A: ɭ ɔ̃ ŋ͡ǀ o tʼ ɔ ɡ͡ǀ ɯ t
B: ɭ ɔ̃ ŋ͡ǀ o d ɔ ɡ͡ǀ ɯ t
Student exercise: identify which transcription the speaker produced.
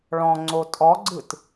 A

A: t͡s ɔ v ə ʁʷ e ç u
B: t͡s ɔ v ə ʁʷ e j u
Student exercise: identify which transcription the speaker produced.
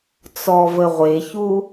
A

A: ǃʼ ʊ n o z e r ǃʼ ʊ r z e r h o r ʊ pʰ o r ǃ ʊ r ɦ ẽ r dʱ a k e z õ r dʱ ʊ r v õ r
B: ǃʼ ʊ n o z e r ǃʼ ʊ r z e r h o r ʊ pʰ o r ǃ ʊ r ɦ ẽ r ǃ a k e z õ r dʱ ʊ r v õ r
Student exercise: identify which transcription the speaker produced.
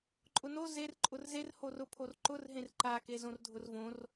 B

